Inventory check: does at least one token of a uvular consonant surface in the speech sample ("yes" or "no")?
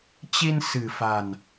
no